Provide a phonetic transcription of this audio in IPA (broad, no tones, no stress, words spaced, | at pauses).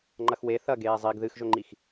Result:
ŋ͡ǃɐxwe θɐ ɡeːzˤiɡ ðɨxʒɵŋ͡ǃix